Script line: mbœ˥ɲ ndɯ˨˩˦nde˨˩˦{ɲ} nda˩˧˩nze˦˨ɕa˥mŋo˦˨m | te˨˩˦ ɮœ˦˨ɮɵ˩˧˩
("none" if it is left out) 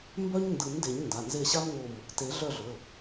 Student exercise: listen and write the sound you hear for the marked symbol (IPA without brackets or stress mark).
ɲ